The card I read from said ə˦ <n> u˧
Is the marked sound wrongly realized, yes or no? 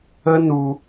no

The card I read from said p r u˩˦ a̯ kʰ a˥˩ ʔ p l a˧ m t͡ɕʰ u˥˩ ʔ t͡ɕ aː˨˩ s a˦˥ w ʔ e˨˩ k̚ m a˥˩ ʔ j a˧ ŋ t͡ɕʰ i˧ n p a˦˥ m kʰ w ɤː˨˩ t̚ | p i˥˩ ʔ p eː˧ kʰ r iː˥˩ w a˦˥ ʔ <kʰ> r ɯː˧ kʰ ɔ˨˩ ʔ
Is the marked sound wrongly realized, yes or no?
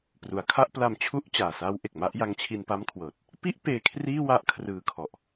no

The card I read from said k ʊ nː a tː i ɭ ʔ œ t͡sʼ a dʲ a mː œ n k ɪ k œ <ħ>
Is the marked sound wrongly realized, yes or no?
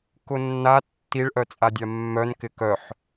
no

